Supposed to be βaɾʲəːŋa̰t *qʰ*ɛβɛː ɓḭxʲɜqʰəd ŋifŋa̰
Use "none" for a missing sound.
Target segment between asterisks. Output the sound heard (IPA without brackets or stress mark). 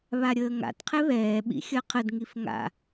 qʰ